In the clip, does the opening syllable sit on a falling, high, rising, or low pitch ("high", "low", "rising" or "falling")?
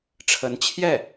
rising